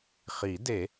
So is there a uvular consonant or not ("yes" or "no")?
yes